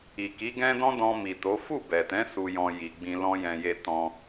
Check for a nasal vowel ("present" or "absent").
present